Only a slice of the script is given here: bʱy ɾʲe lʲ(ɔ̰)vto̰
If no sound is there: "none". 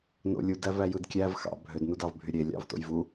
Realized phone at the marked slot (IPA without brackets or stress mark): ɑ̰